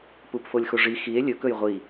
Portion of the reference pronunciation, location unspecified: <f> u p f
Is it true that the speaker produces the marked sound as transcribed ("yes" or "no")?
no